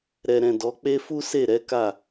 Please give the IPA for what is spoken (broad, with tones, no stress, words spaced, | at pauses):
ɾɛ˨ɾɛ̃˨ dɔ˨˦k͡pe˦ fu˦se˦˨ɾɛ˨˦ka˦˨